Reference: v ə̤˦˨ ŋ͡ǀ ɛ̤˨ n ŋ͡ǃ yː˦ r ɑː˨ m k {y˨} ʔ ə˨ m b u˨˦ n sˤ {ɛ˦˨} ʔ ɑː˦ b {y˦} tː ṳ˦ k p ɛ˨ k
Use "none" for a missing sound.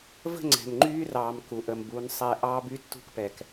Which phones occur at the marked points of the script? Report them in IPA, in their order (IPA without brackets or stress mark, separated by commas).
u˨, ɛ˦˨, y˦